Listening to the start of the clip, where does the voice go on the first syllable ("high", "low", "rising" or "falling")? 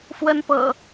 high